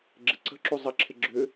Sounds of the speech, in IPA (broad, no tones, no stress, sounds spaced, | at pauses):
ɡ͡ǁ ɪ ǀ ə̤ ǁ u zˤ ɪ ǁʰ ɪ ɡ͡ǁ ʏ